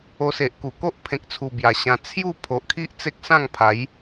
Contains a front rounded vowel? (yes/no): no